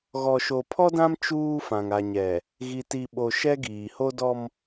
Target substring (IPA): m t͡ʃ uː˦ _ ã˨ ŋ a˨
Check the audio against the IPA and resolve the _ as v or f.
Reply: f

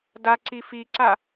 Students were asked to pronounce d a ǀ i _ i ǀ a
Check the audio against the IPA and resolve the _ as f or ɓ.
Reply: f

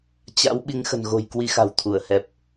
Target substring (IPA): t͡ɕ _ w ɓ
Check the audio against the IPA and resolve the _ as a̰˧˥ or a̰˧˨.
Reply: a̰˧˥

